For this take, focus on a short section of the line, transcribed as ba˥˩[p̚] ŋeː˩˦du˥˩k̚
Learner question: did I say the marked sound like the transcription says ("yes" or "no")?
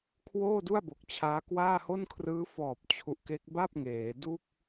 yes